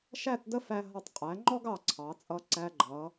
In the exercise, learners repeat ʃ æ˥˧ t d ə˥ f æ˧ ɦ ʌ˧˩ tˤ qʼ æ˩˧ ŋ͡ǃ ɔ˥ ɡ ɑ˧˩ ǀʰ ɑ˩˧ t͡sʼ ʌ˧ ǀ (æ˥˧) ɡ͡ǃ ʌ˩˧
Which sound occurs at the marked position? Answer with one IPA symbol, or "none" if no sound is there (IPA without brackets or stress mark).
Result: æ˧